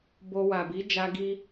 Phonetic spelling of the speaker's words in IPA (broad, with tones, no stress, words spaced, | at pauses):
bo˧ wa˨bi˨˦d͡ʒa˧ ɡi˧